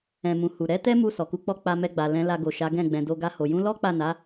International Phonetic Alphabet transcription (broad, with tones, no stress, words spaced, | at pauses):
ɛ̃˨mũ˨ hu˨ ɾɛ˨˦tɛ˦mu˧ sɔ˨ku˨˦k͡pɔ˦ k͡pa˧mɛ˧ɡ͡ba˨ lɛ̃˨˦ la˧ɡo˨ ʃa˨˦ɡɛ̃˦˨ɡ͡bɛ̃˨do˧ ɡa˧ho˨ jũ˨˦lɔ˦k͡pa˦˨na˨˦